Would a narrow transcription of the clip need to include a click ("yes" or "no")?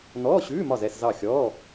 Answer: no